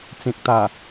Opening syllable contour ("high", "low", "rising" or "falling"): low